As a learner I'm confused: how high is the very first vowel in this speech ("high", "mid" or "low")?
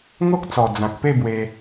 mid